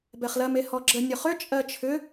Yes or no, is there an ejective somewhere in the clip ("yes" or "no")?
yes